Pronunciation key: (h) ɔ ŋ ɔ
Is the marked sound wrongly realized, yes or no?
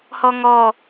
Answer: no